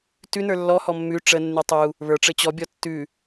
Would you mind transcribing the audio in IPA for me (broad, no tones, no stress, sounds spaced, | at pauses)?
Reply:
t ʉ n ə˞ lː ɔ h ɔ mː ʉ ʈ͡ʂ ə nː ʉ tˤ u | β ə˞ ʈ͡ʂ ɘ t͡ɕ ɔ bʲ ɔ tː ʉ